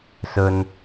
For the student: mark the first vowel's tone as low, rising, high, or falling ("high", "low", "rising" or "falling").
high